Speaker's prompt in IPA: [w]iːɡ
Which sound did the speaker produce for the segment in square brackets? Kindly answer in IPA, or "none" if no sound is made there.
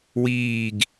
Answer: w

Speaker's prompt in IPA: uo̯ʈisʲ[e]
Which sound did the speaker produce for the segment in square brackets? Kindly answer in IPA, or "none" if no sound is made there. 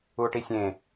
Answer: ẽ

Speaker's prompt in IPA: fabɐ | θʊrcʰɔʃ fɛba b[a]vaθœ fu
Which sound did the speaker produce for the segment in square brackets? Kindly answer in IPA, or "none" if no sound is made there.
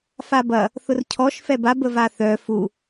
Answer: ə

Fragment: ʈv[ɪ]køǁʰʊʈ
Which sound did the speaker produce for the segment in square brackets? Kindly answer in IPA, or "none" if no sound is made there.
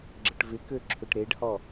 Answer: ɪ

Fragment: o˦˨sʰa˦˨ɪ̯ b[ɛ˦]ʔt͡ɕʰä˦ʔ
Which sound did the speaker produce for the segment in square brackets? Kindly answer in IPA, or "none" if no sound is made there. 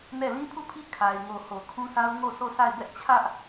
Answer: ɛ˦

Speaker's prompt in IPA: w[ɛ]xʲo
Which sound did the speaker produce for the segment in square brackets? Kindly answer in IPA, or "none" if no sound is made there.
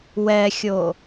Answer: ɛ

